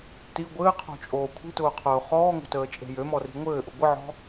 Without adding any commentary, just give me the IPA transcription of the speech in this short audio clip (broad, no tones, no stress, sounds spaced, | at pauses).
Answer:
t i ɡʷ ɘː qʰ o̤ t͡ʃʼ oː kʷʰ i̤ t ʊː qʰ ʊː χ ɔː ŋ o̤ t əː t͡ʃʼ e̤ j ø m ɔ r i̤ ŋʷ ɘː ʔ ʊ ɡʷ ə ʕ ɔ̤